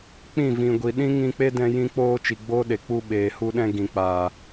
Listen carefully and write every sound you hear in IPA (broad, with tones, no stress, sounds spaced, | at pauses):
k͡p ĩ˦˨ v ĩ˨ ɡʷ i˨ ɗ ĩ˦ ŋ ĩ˧ k͡p e˦ d ɛ̃˧ j ĩ˧ k͡p oː˧ t͡ʃ i˨ ɡ͡b oː˦ ɗ e˨ k͡p u˧ ɓ eː˨ h u˧ ɗ ɛ̃˧ ɡ ĩ˨ k͡p aː˨